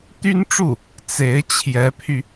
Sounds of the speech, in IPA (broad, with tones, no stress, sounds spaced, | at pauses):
t̪ y˥ n ʈ͡ʂ u˥˩ | t͡s e˧˥ ɪ̯ t͡ɕʰ j ɛ˧˥ pʰ y˧